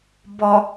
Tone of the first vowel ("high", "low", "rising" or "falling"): low